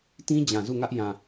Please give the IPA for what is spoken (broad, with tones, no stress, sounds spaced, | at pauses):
t ĩ˦ d͡ʑ ã˨ z u˦˨ ŋ ä˦ ʔ j ã˨